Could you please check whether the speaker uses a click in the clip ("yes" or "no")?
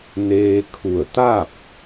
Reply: no